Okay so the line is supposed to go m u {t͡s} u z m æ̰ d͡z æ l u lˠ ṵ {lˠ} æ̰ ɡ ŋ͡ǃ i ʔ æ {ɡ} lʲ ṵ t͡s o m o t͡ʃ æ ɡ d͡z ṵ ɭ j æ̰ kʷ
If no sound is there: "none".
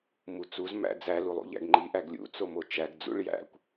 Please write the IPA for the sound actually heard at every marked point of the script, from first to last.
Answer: t͡s, ʎ, ɡ

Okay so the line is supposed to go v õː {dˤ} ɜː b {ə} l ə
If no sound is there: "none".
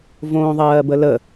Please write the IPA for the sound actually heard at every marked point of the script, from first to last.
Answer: ðˤ, ə

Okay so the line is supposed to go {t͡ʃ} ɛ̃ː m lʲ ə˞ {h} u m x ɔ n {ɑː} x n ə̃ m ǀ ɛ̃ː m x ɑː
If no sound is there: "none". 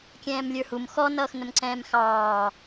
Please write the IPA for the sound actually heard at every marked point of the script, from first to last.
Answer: kʲ, h, ʌː

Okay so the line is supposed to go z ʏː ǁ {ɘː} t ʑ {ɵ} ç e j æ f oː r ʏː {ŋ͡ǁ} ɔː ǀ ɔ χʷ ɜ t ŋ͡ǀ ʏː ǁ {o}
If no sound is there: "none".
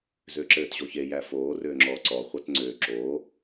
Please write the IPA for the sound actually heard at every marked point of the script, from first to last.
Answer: ɘː, o, ŋ͡ǁ, oː

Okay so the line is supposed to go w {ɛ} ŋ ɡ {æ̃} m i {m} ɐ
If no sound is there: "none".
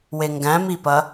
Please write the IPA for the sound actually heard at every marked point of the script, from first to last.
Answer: e, æ̃, p

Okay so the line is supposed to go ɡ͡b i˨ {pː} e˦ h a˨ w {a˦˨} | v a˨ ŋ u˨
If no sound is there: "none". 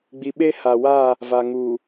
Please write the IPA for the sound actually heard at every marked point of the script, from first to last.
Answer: ɓ, a˦˨

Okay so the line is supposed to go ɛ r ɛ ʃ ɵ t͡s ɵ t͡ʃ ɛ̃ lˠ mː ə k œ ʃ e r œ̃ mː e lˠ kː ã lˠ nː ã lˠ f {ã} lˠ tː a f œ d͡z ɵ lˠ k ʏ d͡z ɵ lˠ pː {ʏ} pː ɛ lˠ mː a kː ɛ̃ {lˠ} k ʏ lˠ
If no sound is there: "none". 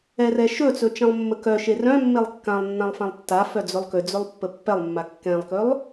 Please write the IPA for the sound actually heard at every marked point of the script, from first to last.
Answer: ã, ə, lˠ

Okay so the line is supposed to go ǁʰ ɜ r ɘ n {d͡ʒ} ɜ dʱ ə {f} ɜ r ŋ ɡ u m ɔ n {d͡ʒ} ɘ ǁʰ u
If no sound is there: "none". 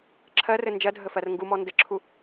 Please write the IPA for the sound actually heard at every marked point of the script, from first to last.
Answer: d͡ʒ, f, d

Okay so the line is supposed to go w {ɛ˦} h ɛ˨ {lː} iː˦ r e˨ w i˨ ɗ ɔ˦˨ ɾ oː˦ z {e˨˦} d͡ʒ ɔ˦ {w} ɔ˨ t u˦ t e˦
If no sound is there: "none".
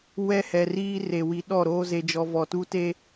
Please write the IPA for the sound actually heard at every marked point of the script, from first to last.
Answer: ɛ˦, r, e˦, v

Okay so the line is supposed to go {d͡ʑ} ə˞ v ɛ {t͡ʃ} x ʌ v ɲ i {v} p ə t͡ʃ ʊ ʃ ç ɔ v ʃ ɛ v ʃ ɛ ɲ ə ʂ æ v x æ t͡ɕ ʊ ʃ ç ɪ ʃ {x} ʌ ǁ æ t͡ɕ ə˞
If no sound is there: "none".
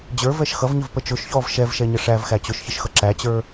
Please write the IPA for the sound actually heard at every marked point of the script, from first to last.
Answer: d͡ʑ, ʃ, v, x

